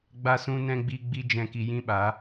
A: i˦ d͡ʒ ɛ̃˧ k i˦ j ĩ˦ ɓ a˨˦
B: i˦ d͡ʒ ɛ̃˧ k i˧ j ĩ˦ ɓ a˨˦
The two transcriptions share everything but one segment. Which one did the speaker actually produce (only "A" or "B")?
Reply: B